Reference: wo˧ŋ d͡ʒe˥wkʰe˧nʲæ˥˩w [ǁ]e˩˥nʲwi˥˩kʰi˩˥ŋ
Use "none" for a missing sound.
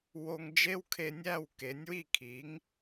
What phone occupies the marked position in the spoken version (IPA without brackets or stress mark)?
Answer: k